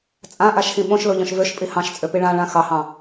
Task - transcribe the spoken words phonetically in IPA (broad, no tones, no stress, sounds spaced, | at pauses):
t͡sʼ ã ʔ a ʃ x ĩ ɓ õ ʃ l o ʎ ɔ̃ ʃ v ø ʃ pʼ i h ɑ̃ ʃ t͡sʼ ø p i ɭ ã ɭ ã x ɑ h ɑ̃